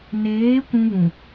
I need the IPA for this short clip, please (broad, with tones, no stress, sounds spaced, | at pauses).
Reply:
n eː˨˦ kʷ ũ˦ β ũ˨